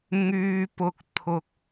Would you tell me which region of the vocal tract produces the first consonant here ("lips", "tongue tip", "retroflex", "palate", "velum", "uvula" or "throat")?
velum